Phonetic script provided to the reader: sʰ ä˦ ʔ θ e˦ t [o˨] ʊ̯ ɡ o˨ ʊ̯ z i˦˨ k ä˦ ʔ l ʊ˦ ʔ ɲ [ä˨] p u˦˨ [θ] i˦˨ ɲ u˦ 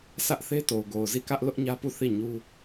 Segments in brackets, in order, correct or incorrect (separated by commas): correct, incorrect, correct